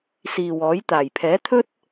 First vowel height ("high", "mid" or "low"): high